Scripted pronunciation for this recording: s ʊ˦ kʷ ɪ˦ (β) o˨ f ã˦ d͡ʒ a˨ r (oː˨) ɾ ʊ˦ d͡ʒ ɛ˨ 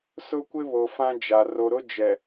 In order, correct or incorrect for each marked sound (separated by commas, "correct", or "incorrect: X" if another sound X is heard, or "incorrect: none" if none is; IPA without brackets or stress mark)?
correct, incorrect: o˨